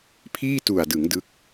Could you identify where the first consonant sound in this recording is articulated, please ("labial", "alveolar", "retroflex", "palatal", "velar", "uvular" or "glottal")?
labial